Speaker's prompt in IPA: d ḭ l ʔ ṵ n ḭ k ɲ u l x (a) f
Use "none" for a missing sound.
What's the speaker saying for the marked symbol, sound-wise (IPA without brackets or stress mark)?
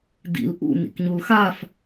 a